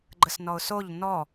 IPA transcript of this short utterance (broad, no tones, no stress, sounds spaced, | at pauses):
ɡ͡ǃ ə s n ɔ ʊ̯ s o ʎ n ɔ